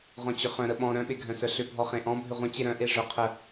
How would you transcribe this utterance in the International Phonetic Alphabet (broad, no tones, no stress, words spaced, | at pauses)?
ʁɔ̃t͡ɕʏχœ̃ ɾəɓɔ̃ ɾœ̃ɓeɡʱœ̃sœ ɬʏbʱɔχẽ ʔɔ̃ bʱʏʁʷə̃t͡ɕe ɾœ̃ʔe ʐœqʰə